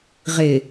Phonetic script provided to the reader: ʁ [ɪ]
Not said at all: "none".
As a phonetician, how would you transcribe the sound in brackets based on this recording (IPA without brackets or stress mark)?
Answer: ɪ